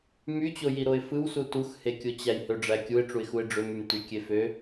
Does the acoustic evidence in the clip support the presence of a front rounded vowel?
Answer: yes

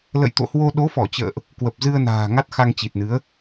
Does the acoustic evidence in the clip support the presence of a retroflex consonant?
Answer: no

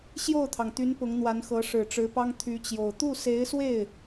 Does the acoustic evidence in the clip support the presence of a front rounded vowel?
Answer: yes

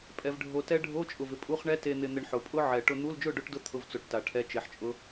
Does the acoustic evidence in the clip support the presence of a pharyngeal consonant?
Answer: yes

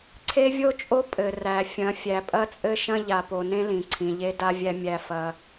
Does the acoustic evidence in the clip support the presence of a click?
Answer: yes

